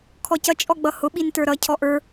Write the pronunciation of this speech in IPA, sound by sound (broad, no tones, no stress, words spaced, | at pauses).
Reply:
kʰɔcʌ t͡ʃʼɔɡ͡bʌhʊ ɓintə˞ɾʌ cʰɔʔə˞